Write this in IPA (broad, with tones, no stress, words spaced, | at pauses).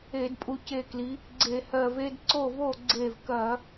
e˧˩˧dpʼu˧˩ce˧˩kli˩˧ | ɡ͡ǀe˧˩˧hɜ˧˩ve˦d ǀo˥˩vo˥˩ ɡ͡ǀe˧˩vkɐ˧˩˧